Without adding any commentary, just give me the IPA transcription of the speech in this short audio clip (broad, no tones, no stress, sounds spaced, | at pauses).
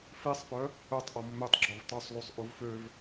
f i sˤ p œ | œ tˤ ʔ ɔ mː ø tˤ ɡ͡ǁ ɔ v tˤ u sˤ l u sˤ ʔ u v f ø v